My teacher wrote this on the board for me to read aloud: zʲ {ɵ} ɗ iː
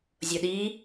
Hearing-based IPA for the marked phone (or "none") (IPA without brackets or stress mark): o